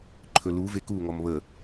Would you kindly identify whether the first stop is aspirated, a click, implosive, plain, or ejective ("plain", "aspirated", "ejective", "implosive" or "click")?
click